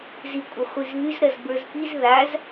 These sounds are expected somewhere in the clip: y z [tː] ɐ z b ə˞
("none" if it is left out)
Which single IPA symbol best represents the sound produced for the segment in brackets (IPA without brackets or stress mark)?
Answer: ɾ